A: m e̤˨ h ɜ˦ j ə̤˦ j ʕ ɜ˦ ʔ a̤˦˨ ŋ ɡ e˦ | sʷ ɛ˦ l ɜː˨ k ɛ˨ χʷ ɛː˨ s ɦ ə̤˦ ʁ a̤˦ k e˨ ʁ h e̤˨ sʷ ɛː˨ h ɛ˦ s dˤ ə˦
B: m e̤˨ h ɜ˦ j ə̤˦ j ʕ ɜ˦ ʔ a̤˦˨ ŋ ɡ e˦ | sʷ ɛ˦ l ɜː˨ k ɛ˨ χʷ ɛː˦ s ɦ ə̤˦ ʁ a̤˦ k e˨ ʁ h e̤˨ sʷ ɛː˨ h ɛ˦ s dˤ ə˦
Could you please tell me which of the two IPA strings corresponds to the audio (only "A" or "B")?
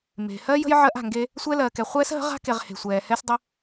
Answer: B